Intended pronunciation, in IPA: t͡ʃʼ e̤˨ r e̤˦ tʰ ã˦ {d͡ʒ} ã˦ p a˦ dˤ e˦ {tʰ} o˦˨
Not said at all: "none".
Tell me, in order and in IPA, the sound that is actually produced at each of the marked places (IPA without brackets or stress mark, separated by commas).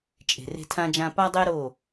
d͡ʒ, ɾ